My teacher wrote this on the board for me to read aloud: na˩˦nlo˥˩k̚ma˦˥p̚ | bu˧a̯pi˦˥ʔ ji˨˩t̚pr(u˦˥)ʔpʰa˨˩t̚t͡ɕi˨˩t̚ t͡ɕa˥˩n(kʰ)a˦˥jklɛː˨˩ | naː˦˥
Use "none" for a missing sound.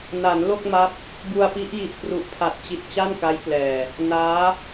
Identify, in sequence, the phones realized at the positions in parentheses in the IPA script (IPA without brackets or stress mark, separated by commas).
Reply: u˨˩, k